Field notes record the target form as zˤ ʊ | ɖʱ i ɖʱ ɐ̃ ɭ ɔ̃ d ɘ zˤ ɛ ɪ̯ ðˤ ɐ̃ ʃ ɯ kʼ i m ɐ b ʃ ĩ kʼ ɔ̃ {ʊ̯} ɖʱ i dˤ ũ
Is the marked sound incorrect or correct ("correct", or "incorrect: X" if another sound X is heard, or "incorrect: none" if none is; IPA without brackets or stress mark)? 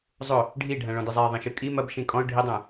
correct